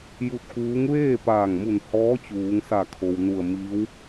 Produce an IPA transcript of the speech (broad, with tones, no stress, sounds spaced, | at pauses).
j u˧ t̚ k uː˧˥ ŋ ʋ eː˥˨ p aː˧˩ ŋ m u˧˩ n h ɔː˧˥ t͡ɕ uː˩˧ ŋ s a˧˩ kʰ o˩ w n u˧˩ ə̯ m i˧˥ w